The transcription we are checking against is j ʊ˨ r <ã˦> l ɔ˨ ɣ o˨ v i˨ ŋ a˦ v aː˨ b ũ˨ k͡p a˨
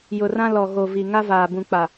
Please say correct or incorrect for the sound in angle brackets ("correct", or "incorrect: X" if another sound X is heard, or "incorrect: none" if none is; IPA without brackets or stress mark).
correct